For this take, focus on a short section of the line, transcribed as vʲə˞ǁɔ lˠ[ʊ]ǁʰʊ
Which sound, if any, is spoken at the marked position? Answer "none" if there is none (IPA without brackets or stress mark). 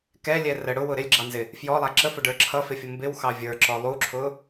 u